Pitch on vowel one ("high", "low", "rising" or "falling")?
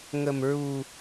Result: low